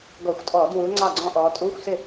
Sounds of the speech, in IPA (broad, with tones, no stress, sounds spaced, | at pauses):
ɡ ɔ˧˩˧ xʷ tʼ ɔː˧˩˧ d w uː˨˦ ŋ͡ǀ ɑ˥˩ ɡ͡ǀ ɔ̃˥˧ ʔ ɔː˨˦ tʼ uː˧˥˧ xʷ s ɪ˥˩